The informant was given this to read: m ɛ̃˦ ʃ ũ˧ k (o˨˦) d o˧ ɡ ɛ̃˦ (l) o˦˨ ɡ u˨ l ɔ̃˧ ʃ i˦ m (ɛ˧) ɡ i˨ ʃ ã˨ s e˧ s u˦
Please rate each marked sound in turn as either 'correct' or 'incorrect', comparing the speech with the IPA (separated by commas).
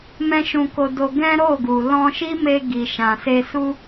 incorrect, incorrect, incorrect